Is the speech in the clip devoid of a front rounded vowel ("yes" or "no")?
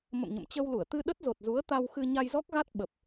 yes